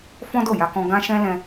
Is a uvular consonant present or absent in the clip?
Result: absent